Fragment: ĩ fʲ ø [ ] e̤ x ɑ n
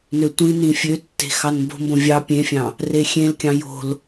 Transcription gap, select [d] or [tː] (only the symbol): tː